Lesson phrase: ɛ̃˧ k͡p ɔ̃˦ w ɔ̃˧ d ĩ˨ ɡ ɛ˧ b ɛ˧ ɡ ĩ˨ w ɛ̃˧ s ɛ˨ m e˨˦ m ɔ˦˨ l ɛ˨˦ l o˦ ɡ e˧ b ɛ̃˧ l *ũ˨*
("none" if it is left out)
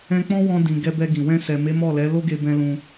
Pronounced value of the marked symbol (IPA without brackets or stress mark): ũ˧